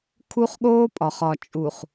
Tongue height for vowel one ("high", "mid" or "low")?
high